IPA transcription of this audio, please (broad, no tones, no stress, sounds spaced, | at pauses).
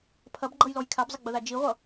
pʰ ɐ b ɡ͡ǃ ʌ j l ɔ j kʰ a b zˤ ə ɡ͡b ə ð a d͡ʒ i ʁʷ ʌ